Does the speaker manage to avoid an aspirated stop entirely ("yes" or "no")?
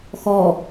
yes